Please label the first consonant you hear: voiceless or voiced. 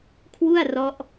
voiceless